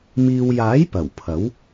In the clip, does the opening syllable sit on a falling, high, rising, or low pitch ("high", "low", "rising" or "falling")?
low